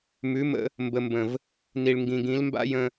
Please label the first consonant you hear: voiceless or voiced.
voiced